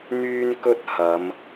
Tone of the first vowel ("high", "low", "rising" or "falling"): high